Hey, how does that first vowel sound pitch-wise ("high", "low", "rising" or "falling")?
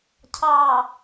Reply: low